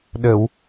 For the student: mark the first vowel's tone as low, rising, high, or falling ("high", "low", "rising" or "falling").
low